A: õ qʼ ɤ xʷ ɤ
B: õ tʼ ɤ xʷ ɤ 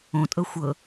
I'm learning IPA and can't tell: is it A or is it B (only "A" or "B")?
B